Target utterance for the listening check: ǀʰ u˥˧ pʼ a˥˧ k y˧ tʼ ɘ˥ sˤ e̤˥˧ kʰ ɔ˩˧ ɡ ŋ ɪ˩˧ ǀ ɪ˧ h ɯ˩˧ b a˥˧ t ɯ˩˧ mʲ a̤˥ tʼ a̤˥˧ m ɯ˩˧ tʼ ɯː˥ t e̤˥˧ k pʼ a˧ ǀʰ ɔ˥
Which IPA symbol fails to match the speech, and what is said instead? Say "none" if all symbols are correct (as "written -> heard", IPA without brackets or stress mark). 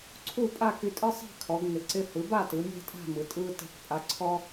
none